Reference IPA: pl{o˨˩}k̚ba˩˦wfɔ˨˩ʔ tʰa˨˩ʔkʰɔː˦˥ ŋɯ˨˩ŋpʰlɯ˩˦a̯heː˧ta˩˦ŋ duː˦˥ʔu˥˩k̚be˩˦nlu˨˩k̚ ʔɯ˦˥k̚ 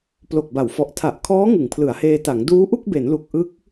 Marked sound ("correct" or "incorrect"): correct